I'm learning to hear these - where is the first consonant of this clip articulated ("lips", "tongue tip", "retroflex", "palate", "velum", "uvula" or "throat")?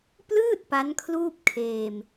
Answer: lips